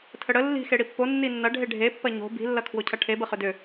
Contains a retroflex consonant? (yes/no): yes